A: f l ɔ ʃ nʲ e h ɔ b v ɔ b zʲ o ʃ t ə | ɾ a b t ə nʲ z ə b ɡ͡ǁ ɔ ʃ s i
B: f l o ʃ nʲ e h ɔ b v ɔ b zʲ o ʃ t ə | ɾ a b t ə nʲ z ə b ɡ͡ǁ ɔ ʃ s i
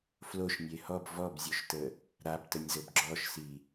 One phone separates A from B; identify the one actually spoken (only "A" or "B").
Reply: B